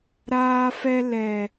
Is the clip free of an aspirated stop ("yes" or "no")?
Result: yes